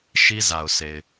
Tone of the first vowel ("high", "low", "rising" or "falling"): high